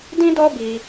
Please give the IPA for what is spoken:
d ĩ˦ d ɔ˦ b i˧

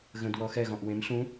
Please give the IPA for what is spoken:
ɣ ə̃ d w ɔ x ɛ ɣ ɔ̃ ʔ w ẽ m ɬ ũ

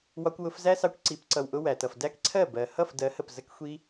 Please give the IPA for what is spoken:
w ɒ˧ kʷ w ʊ˧ f z æ˦ s ɑ˧ kʷ ǀ i˨˦ p ǀ ʌ˨ w ʔ ʊ˧ w æ˨ t ʌ˨ f d æ˦ k ǀʰ ɜ˦˨ b ɜ˨ h ʌ˦˨ f d ɜ˨˦ h ə˨ p z ə˧ k xʷ i˧

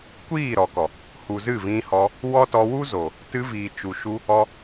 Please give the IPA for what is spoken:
kʷ iː˦˨ ɾ ɔ˨ k ɔ˨ | h u˨ z ɨ˦˨ v ĩ˧ h ɔ˧ | w ɔ˦ t ɔ˧ w u˦ z o˨ | t ɨ˧ v iː˨ t͡ʃ u˨ ʃ u˧ | ɔ˧

